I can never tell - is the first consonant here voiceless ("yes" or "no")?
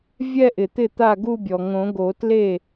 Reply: no